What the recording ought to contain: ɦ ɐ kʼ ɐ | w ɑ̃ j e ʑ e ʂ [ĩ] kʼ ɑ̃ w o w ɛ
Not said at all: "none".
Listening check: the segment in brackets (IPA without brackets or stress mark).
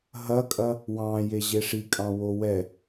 i